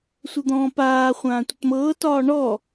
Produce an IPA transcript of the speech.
sʷ ə d̪ ɔ̃ː p aː χʷ ãː tʷ ə t m ɤː t ɒː ɳ ɔ

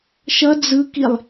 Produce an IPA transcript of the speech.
ʃ ʌ d͡z ɯ k i lˠ

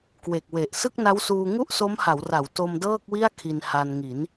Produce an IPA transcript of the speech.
k w e˨˩ k̚ w e˨˩ ʔ s ɯ˥˩ k̚ n a˦˥ w s uː˧ ŋ u˥˩ ʔ s o˦˥ m h a˩˦ w r a˩˦ w t o˧ m d ɤː˥˩ k̚ w i˥˩ a̯ kʰ i˧ n h a˧ n ŋ i˩˦ n

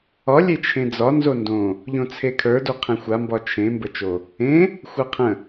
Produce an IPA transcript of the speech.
ɒ lʲ e t͡ʃʰ ẽ d͡z ɒ n z o n d õ | ʎ õ t͡sʰ e kʰ ə˞ d o qʰ ẽ xʷ a m b ɒ t͡ʃʰ ẽ m b ə t͡ʃ o | ẽ | xʷ a qʰ ə̃

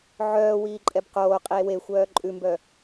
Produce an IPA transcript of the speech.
ʕ œː w iː ǃʼ ɛ b q oː qʼ i e̯ w e xʷ œː ǃʼ ʉ m b œ

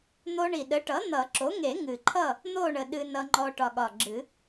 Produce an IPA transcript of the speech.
n̪ o˧ ɳ i˨˩ ɗ ə˩˥ ʈ ʌ˩˥ n̪ ʌ˨˩˦ ǁ o˩˥ ŋ e˨˩˦ ŋ ɨ˨˩ ǃʰ ʌ˥˨ | n̪ o˥˨ ɳ ə˨˩ ɗ ɨ˧ n ʌ˧ ŋ͡ǃ ɔ˧ ʈ ɒ˨˩ ɠ ɒ˨˩ ɡ͡ǁ ɨ˨˩˦

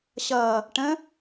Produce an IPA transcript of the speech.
ɕ ʌː | ʈ ə̃

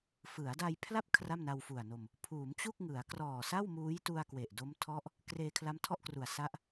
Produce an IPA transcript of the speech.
f ɯ˩˦ a̯ d a˧ j pʰ l a˥˩ p̚ kʰ r a˥˩ m n a˧ w f u˨˩ a̯ n o˧ m | pʰ uː˩˦ m t͡ɕ u˥˩ k̚ ŋ ɯ˩˦ a̯ k r ɔː˨˩ s a˥˩ w m uː˦˥ j t u˧ a̯ k w e˨˩ ʔ d o˦˥ m tʰ ɔ˦˥ ʔ | k r eː˧ kʰ l a˦˥ m tʰ ɔ˥˩ ʔ k r u˨˩ a̯ s a˦˥ ʔ

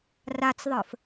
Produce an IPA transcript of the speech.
r a t͡s ðˤ ə˞ f

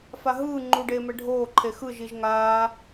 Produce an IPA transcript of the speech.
f a ɦ ɯː ŋ͡ǃ u ɖ eː m ɛ ɖʱ oː ǃʰ e x ɯ ʒ i ʒ ŋ aː

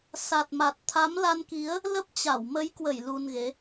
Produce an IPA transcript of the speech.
s a˨˩ t̚ m a˨˩ t̚ t̪ʰ a˨˦ m l a˧ n k i˨˦ ə̯ | l ə˦˥ p̚ t͡ɕ a˧˩ w m ə˨˦ j k w ə˧˩ j l u˧ n ɣ e˨˦

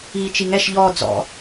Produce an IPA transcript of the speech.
iː t͡ʃ i ŋ ɛ ʃ ʎ ɔ d͡z ɔ̰

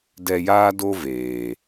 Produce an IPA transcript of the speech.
d ɛ˧ j aː˦ d o˦ v eː˨

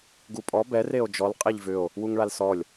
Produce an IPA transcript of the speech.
ɡ u pʼ ɔ b ɛ r e o̯ d͡ʒ ɔ l qʼ e ʎ v ʏ o̯ | w u ŋ ɭ a l s ɔ lʲ

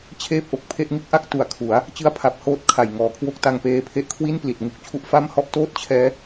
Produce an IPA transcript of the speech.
t͡ɕʰ eː˥˩ p̚ ʔ o˨˩ k̚ pʰ e˦˥ ʔ ŋ ɯ˥˩ k̚ ʔ a˥˩ k̚ t u˨˩ a̯ kʰ u˩˦ a̯ | t͡ɕ ɯ˦˥ a̯ pʰ a˨˩ p̚ h oː˦˥ t̚ kʰ a˨˩ j ŋ ɔː˨˩ kʰ w o˥˩ k̚ t a˧ ŋ p eː˧ pʰ e˦˥ ʔ kʰ w i˥˩ n p l i˨˩ t̚ ŋ u˦˥ k̚ t͡ɕʰ u˦˥ ʔ f a˥˩ m h ɔ˥˩ ʔ t oː˥˩ t̚ t͡ɕʰ ɛː˦˥

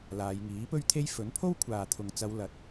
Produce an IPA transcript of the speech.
l aː˨˧ j ŋ iː˨˥ p ɵ˥ ɥ t̪ʰ e˥ j f ɵ˨˥ n pʰ o˥ w kʷʰ aː˨ t̪ʰ ʊ˨ ŋ t͡s ɐ˨˧ w l ɐ˨˥ t̚

